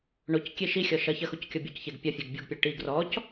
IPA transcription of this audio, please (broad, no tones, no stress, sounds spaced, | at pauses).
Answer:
ɳ o c kʲ e ʃ i xʲ ɔ ʃ ɐ ç ɐ x u c kʲ ɔ bʲ o c ç e ɡ pʲ ɐ fʲ e ɡ bʲ u ɡ pʲ ɐ ʈ i ɡ r ɔ c